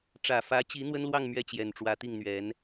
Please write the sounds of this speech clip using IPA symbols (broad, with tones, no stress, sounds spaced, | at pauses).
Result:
ʈ͡ʂ ä˨˩ f ä˧˥ t͡ɕ i˧˥ n̪ w ə˥ n l w ɑ˥˧ ŋ m ɥ ɛ˥˩ t͡ɕ j ɛ˨˩ n ʈ͡ʂ w ä˧˥ t̪ i˥˩ ŋ n̪ ɥ ɛ˧˥ n